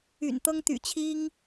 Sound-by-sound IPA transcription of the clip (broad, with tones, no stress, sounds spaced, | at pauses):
y̰˨˩ n t̪ ɤ˥ ŋ t̪ y̰˨˩ t͡ɕʰ i˥ ŋ